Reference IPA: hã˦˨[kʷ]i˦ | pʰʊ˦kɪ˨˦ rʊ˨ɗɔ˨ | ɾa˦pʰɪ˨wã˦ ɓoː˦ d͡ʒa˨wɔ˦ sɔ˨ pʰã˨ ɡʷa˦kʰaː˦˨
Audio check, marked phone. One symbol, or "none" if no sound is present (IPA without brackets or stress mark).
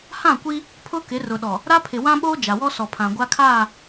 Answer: kʷ